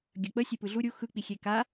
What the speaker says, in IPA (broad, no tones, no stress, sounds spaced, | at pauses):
ɡʲ ɐ k͡p ə sʲ e p ɯ ɮ u ɾʲ u x ɯ k͡p i xʲ e k a